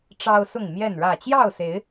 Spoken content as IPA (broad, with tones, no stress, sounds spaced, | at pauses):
ʈ͡ʂ ɑ˦ ʊ̯ s ʊ˥˨ ŋ m j ɛ˥˨ n ɻ ä˥˨ t͡ɕ j ɑ˥˨ ʊ̯ s e˨˦ ɪ̯